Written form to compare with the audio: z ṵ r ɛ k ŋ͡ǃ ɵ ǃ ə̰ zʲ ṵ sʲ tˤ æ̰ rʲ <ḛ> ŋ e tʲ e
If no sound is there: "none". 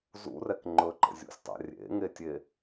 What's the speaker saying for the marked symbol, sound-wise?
ḛ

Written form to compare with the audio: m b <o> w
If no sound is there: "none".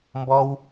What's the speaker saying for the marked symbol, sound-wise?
ɔ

